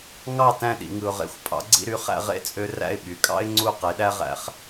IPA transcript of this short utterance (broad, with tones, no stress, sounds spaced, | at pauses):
ŋ ɑ˥˩ t æ̃˥˩ ɗ ḭ˩ ŋ ɯ˩ ʊ̯ ʁ ḛ˩˥ xʷ pʼ ɑ̰˩˥ ɡ͡ǀ ḭ˧ ɾ y˩˥ χ æ̰˧ ʁ ḛ˥˩ t͡sʼ ø˧ r æ̰˥˩ ɪ̯ ɓ y˩ kʼ ɑ̰˥ ɪ̯ ŋ͡ǀ u˥˩ q e˩˥ ɗ æ˥ ʁ æ̰˧ χ